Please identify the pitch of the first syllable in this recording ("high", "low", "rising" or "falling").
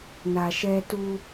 low